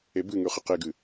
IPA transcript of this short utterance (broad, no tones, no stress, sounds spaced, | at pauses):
e b ɨ ŋ ʉ χ ɨ q e ɡ ɨ